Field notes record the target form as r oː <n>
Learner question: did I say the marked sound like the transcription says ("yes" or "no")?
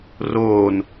yes